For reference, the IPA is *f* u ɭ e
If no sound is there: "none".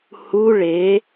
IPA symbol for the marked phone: h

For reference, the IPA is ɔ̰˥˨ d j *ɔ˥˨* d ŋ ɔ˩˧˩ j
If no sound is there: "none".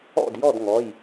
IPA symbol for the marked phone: ɔ˥˨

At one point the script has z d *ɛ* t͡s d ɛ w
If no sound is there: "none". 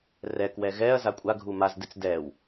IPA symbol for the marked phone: ɨ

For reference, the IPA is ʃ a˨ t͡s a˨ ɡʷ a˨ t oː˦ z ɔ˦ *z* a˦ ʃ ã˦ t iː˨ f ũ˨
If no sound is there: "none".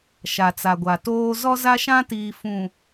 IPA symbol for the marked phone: z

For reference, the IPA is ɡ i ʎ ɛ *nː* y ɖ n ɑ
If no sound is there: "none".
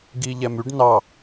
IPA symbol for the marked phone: m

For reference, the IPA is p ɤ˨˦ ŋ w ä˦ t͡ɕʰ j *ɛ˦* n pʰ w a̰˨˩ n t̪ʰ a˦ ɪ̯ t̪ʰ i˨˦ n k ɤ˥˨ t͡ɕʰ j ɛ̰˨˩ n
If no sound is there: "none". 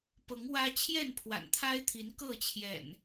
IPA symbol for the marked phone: ɛ˥˨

